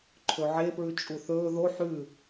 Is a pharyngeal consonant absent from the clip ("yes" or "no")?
no